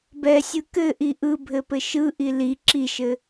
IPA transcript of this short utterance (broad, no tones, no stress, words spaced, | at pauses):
bɛsʲɯ kɘʔi ʔɯbʱɘpɘ ʃɯʔi li ǁiʃɘ